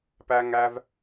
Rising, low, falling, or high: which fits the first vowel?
high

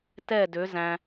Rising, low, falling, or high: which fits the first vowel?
falling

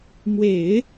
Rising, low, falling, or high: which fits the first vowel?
low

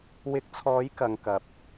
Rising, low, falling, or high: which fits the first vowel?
rising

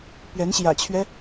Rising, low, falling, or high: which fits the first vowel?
rising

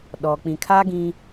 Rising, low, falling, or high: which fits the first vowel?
low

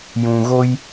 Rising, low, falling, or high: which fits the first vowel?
low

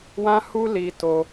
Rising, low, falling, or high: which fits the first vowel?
high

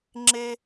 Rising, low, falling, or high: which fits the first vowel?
high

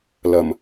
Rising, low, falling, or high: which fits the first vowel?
low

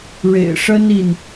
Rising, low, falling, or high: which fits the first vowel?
low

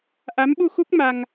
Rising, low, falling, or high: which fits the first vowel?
rising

